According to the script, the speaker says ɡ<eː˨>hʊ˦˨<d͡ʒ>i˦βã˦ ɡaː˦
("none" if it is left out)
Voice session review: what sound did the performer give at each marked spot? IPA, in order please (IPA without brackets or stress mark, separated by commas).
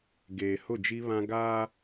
eː˨, d͡ʒ